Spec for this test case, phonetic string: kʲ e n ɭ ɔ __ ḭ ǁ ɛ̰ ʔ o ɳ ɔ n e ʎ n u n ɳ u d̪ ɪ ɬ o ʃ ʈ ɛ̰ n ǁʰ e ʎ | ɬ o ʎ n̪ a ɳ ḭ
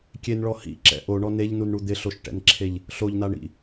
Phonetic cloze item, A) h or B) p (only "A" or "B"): A